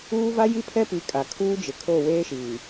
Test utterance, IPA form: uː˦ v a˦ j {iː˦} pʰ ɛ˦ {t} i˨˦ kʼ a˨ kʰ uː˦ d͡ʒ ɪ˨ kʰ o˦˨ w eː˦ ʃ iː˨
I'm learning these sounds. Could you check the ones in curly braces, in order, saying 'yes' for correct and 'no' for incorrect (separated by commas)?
no, no